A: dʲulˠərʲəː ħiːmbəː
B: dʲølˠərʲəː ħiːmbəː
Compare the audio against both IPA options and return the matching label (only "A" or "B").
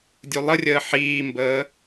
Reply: A